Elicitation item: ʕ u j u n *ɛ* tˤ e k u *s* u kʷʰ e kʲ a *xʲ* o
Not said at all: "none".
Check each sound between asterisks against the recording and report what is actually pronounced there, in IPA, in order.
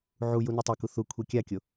ɛ, θ, kʲ

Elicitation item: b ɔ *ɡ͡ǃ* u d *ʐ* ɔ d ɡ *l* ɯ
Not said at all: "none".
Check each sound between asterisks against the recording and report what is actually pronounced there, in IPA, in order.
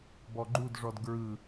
ɡ͡ǃ, ʐ, ɹ

